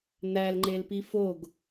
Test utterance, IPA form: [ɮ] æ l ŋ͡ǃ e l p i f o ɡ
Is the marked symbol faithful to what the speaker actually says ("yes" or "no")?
no